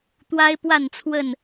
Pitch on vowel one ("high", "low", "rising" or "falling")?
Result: high